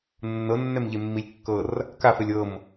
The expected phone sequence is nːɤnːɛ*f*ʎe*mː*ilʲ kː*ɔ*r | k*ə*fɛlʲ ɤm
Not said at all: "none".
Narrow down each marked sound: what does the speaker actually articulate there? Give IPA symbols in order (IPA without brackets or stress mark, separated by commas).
m, mː, ɤ, a